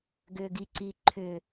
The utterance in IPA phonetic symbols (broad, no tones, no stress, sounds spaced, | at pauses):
ɡ ʏ ɡ i ǀ i ǃʰ ʏ